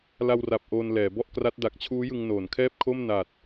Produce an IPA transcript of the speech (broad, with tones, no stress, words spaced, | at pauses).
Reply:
la˧wra˨˩p̚ ʔoː˧nlɛː˩˦bɔ˥˩ʔkra˦˥t̚ da˨˩k̚t͡ɕʰuː˦˥jɯ˧ŋ noː˩˦nkʰɛː˥˩p̚ kʰo˥˩mna˨˩t̚